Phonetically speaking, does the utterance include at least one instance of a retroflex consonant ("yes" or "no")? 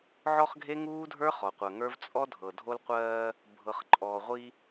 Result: no